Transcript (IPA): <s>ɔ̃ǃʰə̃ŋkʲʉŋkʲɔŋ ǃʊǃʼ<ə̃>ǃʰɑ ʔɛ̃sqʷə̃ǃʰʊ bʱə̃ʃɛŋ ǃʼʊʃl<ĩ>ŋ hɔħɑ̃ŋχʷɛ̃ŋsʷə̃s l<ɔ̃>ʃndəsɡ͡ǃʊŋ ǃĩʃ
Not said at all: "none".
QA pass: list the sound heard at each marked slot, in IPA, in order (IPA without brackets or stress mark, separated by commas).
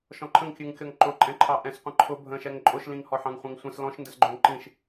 ʃ, ɛ̃, ĩ, ɔ̃